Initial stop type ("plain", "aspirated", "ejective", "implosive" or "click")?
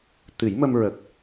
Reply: plain